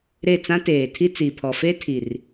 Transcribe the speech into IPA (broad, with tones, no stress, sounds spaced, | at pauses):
ɾ e˦˨ t͡s ã˦ t eː˨ tʰ i˦ t͡s i˨ pʰ ɔ˨ f e˦ tʰ i˨ r